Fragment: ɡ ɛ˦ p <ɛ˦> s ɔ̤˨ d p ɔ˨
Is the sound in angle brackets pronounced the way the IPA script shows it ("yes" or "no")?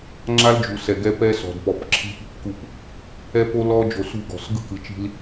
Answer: yes